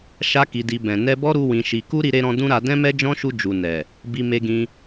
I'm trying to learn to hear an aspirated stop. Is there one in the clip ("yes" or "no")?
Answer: no